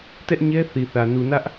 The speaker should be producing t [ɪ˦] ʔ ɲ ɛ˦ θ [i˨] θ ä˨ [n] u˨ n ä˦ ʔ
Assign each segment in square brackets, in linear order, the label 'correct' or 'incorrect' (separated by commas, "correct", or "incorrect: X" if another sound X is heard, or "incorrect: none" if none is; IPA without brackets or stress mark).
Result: incorrect: ɛ˦, correct, correct